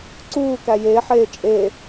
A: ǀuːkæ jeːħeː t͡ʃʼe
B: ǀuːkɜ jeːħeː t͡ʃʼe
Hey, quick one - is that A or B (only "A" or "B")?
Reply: A